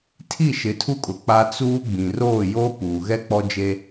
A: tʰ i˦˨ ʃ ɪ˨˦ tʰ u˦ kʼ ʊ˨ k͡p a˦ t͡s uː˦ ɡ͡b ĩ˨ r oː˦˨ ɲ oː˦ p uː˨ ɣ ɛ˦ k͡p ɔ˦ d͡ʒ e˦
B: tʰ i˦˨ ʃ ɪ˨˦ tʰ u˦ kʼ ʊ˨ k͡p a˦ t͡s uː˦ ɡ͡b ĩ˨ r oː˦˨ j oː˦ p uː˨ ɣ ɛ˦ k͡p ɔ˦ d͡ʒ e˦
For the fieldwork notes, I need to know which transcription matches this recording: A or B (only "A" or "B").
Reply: B